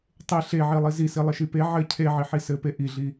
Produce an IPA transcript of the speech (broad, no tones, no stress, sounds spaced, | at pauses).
tˤ e ɬ e ʕ i lˠ i z i s i lˠ ɘ ʃ i p e ʕ ɘ cʰ e ʕ i ħ i s ɘ p e ʔ i ɮ i